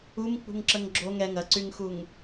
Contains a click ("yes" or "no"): yes